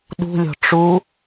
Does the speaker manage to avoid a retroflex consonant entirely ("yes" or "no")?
no